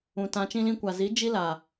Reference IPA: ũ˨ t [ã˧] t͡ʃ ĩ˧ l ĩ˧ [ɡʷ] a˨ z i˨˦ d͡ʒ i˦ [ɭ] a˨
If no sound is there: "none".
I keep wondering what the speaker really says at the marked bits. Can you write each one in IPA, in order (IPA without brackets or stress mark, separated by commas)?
ã˧, kʷ, l